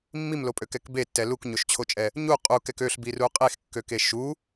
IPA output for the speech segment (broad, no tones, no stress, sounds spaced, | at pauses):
mː i m l o pʼ ø k ɛ k b e tː ɛ l u k ɲ o ʃ t͡ɕʰ o t͡ʃʼ ɛ | ɲ u qʼ u k ɛ k ø ɬ b i r u qʼ e x kː ø k e ʃ u